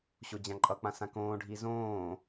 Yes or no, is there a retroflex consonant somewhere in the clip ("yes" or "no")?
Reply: yes